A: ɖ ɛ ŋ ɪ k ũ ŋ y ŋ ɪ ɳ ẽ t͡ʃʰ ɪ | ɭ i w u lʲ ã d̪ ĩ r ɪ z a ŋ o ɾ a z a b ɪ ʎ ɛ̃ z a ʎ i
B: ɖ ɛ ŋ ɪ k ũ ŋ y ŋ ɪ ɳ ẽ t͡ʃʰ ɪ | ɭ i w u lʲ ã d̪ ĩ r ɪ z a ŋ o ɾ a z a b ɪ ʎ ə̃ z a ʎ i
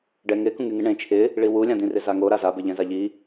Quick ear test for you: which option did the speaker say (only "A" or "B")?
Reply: A